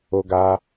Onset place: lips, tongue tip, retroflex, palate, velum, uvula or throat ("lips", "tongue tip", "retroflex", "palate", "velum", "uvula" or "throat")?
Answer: velum